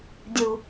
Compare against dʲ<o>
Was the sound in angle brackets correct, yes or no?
no